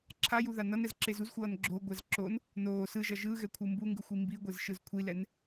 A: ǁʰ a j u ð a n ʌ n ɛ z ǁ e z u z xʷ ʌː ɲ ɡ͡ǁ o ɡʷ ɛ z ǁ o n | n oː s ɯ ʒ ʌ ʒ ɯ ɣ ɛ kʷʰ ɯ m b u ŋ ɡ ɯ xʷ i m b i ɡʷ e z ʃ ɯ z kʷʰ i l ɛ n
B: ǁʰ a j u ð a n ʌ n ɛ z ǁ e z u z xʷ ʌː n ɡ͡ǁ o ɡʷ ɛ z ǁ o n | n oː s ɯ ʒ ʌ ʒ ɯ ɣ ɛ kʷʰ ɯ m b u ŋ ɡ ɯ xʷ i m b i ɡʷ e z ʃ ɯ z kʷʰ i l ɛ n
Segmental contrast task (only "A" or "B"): B